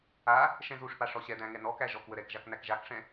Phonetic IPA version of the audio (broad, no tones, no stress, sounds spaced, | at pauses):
a | ʃ ɛ̃ z u ʂ p a ʂ ɔ ɕ ɛ d̪ æ̃ ŋ ɛ n ɔ k æ ʒ ɔ k w ə ɾ ɛ k ʒ a k n̪ æ k ʒ a k ʂ ɛ̃